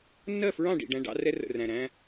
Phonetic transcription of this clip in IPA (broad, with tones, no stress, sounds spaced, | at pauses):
nː ɜ˦˨ f ɹ ɑ̃˦˨ ɖ ḭ˨ ɖ æ̃˦ ɖ ɑ̰˦ r ɛ˦ r ə̰˨ r æ̃˨ ɾ æ̃˦